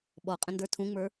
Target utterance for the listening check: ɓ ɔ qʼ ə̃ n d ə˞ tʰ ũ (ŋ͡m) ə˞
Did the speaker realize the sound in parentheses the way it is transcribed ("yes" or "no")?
yes